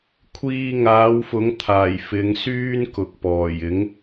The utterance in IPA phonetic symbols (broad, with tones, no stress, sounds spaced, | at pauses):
kʷʰ iː˧ ŋ aː˨˥ w f ʊ˨˥ ŋ t̪ʰ aː˨˩ j f ɪ˨˧ ŋ s yː˥ n k ʊ˨ k̚ p ɔː˨˩ j ɪ˨˥ ŋ